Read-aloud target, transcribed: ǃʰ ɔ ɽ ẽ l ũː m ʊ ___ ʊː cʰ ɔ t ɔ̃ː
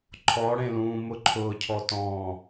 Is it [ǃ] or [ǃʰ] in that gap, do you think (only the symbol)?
ǃʰ